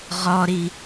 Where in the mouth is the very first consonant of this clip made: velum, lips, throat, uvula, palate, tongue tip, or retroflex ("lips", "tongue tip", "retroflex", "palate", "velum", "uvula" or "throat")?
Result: uvula